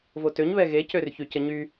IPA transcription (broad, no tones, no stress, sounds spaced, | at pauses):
v o t ø ɲ β ɛ ɣ e c ø r ç y c ə ɲ y